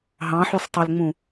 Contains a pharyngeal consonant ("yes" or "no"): yes